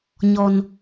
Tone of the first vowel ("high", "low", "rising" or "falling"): high